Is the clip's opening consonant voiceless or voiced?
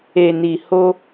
voiced